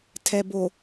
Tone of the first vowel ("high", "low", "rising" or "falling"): low